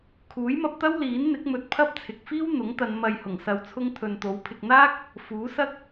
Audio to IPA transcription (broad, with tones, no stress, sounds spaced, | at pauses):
kʰ uː˨˥ j m ɐ˧ p̚ t̪ ɐ˥ w l iː˨˥ n n̪ ɪ˨˥ k̚ m ɵ˨˥ t̚ pʰ ɐ˥ p̚ t͡sʰ ɪ˨ k̚ f iː˥ w n̪ ʊ˨˥ ŋ t̪ ɐ˨˧ n m ɐ˨ j h ʊ˨˩ ŋ s ɐ˧ w t͡sʰ ʊ˥ ŋ t̪ʰ ɵ˨ n t̪ o˨˥ w pʰ ɪ˧ k̚ n̪ aː˥ k̚ | f uː˨˥ s ɐ˥ k̚